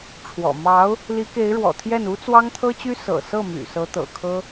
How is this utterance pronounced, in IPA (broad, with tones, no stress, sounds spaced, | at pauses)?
ʈ͡ʂʰ w ɔ̰˨˩ m ɑ˧˥ ʊ̯ | l i˧˥ k e˧˥ ɪ̯ ɻ w ɔ̰˨˩ t̪ʰ j ɛ˥˩ n u˥ t͡s w ɑ˥ ŋ t̪ʰ ɤ˥ t͡ɕ y˥ s ɤ̰˨˩ s ɤ˥˩ m y̰˨˩ s ɤ˧˥ t̪ ɤ̰˨˩ kʰ ɤ˥